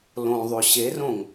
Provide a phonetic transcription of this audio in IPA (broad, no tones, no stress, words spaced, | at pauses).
lõðˤø ɕerõŋ